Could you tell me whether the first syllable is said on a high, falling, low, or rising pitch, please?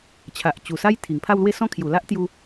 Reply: low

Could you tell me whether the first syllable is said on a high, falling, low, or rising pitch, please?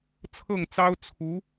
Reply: falling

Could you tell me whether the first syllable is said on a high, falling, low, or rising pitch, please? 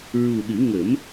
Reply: low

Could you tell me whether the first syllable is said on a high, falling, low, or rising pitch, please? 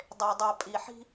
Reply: low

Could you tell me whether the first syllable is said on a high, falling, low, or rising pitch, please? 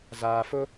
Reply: low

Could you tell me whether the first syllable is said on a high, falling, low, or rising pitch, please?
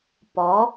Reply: rising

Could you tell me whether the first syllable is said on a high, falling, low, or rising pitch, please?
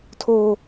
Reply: high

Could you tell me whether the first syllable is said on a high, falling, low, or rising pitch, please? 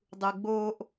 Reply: low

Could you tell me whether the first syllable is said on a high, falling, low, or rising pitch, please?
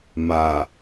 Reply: low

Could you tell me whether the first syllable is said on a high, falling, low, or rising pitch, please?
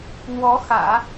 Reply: rising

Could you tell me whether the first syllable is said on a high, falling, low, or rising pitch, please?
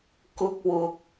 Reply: high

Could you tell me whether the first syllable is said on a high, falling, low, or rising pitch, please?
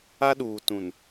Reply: high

